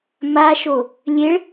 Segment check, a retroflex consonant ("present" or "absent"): present